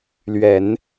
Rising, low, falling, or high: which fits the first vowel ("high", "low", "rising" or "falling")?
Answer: low